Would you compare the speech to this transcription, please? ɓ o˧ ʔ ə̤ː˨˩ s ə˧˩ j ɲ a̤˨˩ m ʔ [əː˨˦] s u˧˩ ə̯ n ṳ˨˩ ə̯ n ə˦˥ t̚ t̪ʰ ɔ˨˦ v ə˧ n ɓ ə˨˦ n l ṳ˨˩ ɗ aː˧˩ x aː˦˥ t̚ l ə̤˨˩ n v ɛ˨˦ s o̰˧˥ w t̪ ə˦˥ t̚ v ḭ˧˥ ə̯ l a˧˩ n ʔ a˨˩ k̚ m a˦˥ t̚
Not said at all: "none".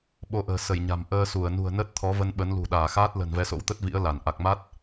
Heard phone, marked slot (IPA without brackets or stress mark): əː˧